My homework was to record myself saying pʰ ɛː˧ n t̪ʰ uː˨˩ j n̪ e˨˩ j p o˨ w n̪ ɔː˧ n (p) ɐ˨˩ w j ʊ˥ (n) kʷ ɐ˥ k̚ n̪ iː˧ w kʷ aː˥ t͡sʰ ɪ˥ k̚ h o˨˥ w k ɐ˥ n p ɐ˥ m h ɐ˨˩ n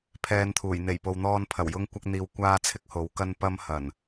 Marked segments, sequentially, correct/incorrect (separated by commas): incorrect, incorrect